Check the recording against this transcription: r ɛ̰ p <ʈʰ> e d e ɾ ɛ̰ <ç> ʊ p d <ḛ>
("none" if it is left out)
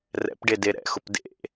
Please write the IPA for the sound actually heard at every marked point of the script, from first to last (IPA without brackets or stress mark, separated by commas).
ɖ, x, ḛ